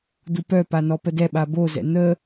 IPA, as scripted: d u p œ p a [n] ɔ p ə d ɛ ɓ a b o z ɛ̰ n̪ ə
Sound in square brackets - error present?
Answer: no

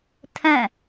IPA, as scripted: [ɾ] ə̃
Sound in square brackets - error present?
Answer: yes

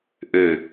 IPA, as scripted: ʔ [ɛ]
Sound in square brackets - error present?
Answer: yes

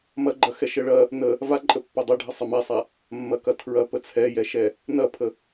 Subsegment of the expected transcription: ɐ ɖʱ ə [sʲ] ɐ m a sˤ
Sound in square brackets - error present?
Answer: yes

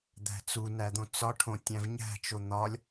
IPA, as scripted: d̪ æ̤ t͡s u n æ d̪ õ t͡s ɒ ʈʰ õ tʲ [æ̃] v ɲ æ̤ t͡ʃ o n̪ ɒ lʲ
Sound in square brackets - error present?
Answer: no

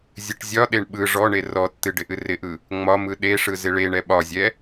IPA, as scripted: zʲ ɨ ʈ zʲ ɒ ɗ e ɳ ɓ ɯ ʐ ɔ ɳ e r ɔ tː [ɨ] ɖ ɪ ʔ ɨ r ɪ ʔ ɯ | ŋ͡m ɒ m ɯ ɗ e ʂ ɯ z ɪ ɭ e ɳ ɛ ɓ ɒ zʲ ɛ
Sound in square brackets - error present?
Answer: no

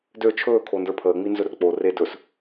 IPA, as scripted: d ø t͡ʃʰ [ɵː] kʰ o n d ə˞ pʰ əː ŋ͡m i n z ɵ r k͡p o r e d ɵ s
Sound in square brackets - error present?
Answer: no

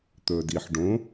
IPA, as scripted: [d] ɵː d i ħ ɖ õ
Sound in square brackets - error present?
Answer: yes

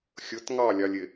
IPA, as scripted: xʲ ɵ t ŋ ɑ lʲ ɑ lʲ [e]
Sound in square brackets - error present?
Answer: no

